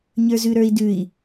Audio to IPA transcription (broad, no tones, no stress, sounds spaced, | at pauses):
ɲ ə˞ z ʉ ɾ ə˞ i̯ d ʉ i̯